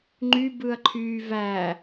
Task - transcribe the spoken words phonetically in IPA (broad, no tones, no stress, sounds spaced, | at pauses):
ŋ͡ǃ y b ɯ ɐ̯ ǃʰ yː v æ